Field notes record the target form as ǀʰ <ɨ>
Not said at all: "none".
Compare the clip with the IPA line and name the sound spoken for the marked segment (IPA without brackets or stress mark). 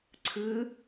ɨ